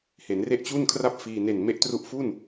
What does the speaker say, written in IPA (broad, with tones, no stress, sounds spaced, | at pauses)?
h e˩˦ n r e˥˩ ʔ t͡ɕ u˥˩ n kʰ r a˥˩ p̚ f iː˧ n e˨˩ n m e˦˥ ʔ t r u˦˥ ʔ f u˥˩ n